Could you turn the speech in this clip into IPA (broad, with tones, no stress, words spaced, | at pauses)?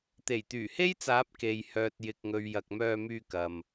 t̪e˨˩jt̪yː˨˩he˥jt͡saː˨˥p̚ ke˨j hœː˨t̚jɪ˨k̚ŋɵ˨ɥ jɐ˨k̚mœː˧myː˧kɐ˨m